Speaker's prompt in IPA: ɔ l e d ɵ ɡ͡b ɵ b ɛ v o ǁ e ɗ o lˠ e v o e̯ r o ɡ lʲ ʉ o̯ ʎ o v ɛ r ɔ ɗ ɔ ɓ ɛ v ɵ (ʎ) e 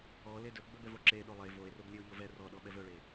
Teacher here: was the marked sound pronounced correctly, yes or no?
no